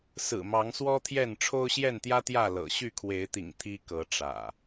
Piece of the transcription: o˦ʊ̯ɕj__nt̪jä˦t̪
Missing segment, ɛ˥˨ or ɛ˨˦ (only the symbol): ɛ˥˨